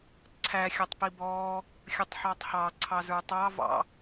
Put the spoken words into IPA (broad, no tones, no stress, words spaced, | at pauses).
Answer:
ǀʰæ xʲʌtˤpibɔː | xʲətˤħɑtˤhɑ ǀʰɑzə˞tˤɑ vɑ̰